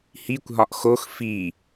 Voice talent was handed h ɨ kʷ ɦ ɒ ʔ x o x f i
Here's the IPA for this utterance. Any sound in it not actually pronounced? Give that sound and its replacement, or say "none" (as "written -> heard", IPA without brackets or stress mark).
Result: ɨ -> i